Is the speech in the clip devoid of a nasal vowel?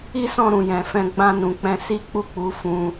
no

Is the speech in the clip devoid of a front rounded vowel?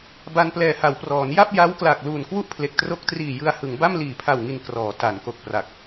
yes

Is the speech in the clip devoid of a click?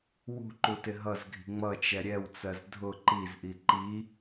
no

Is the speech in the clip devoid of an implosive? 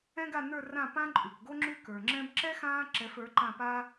yes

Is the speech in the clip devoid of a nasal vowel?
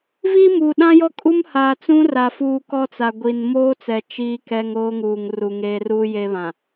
no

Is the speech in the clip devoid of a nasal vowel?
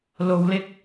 yes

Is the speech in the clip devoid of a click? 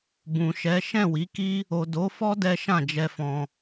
yes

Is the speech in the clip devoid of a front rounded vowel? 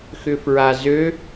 no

